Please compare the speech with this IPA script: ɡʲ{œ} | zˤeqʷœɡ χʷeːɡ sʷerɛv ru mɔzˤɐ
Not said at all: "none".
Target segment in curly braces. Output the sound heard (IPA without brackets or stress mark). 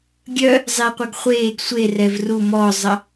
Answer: œ